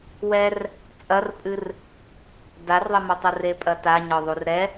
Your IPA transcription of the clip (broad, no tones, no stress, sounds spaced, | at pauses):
w ɛ r | t͡sʼ ɐ r pʼ ɨ r | d a r ðˤ ɘ m o tˤ u r e pʼ ɐ t a ɲ ɔ ðˤ u r ɾ ɛ